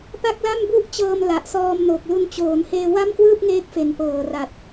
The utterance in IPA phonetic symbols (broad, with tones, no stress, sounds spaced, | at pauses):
p a˥˩ k̚ l a˥˩ m b u˥˩ ʔ t͡ɕ ɤː˧ m l a˨˩ ʔ s ɔː˧ m n o˨˩ k̚ l u˧ n t͡ɕ oː˩˦ n h eː˧ w a˥˩ m k w ɯː˥˩ p̚ ŋ eː˦˥ k̚ f e˩˦ n p ɤː˨˩ r a˨˩ t̚